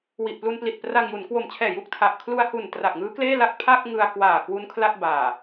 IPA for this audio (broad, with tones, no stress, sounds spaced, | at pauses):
w i˨˩ ʔ p l u˧ n p l i˨˩ t̚ p r a˧ ŋ j u˩˦ n k w o˨˩ m t͡ɕʰ ɛː˨˩ j u˦˥ k̚ tʰ a˨˩ ʔ kʰ l u˧ a̯ h u˨˩ n t r a˨˩ k̚ ŋ ɯː˦˥ k l eː˥˩ l a˥˩ k̚ pʰ a˥˩ k̚ ŋ ɯ˧ a̯ k w aː˨˩ k w u˦˥ n kʰ l a˥˩ t̚ b aː˨˩